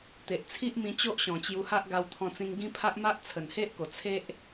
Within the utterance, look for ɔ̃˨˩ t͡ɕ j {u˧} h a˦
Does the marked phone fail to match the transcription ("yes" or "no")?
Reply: no